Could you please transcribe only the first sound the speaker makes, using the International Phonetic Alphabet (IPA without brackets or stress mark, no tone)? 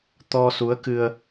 t̪